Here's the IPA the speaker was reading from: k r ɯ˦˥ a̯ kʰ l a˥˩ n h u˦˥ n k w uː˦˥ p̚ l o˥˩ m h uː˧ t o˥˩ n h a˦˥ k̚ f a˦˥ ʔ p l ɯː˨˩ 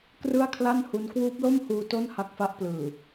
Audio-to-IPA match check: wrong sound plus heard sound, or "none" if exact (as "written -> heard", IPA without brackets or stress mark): ɯ˦˥ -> ɯ˥˩